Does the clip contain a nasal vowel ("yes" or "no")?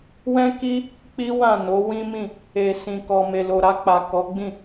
yes